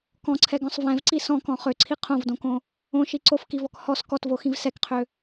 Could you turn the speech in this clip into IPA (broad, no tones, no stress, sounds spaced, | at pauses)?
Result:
k ɔ̃ ǀʰ ɛ ɡ ɔ̃ sˤ v ɛ̃ v ǀ i s ɔ̃ k ɔ̃ χ ø ǀʰ i qʰ õ v d õ k õ | õ ʃ i ǀ o f k i v ɔ k h ɔ s k ɔ t v o x ĩ v s ɛ k qʰ ø